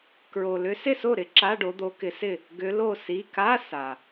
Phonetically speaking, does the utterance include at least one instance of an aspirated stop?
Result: no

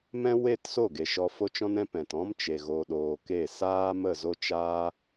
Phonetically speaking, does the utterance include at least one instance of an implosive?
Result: yes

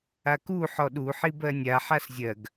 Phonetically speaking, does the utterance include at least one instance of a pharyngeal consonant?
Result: yes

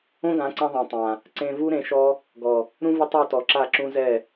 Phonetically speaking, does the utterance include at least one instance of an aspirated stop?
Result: no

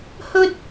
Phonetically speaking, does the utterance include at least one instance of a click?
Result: no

